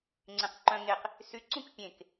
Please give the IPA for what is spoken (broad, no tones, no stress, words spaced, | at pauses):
ŋ͡ǀẽqǃœ̃ ŋeq | sy ǀũkpʲẽk